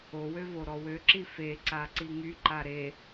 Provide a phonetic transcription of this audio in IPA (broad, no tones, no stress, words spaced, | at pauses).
owø voɾɔwøǁi feǀa ǀiŋyǃa ɾe